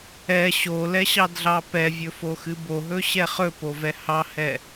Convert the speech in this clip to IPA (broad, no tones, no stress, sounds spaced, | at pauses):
ɛ ɕ o l ɛ ɕ ɑ d ɮ ɑ p ɛ vʲ ɵ f o x ɨ b o ɦ ɵ ɕ ɛ χ ɵ p o v ɛ h ɑ h ɛ